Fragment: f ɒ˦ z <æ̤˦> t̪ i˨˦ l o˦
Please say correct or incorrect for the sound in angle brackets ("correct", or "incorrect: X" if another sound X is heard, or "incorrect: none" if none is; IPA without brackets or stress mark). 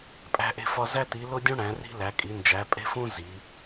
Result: incorrect: æ˦